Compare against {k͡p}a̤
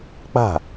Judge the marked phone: correct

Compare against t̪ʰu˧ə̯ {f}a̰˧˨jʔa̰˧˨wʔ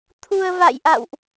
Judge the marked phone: incorrect: v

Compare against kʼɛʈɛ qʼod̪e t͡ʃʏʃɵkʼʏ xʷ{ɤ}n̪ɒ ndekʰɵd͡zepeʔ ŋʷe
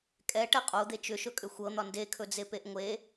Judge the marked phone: correct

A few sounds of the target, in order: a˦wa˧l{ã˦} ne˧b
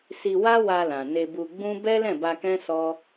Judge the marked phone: incorrect: ã˨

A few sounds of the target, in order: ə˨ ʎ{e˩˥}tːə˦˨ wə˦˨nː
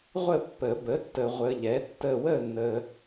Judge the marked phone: incorrect: ɛ˩˥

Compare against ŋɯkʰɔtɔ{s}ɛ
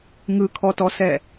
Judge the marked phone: correct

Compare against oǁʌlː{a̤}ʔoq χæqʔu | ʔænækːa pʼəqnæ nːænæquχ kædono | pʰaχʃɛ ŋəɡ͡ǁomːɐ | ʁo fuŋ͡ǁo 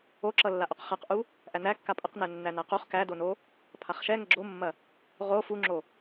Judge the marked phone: incorrect: a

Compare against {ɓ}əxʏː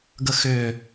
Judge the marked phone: incorrect: ɡ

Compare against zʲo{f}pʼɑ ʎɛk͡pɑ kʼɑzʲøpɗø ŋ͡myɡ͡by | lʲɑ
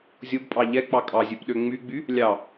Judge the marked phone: incorrect: b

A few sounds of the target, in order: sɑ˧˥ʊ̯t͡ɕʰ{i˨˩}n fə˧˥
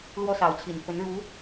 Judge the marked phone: correct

